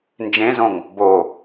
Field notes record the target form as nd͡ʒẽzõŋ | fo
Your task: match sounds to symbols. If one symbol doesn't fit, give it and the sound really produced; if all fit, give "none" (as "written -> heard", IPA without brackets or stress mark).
f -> b